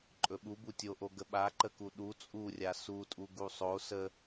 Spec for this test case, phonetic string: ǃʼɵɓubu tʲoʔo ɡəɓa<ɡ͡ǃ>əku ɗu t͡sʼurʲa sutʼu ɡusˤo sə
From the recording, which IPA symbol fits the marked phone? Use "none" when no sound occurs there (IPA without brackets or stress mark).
ǃ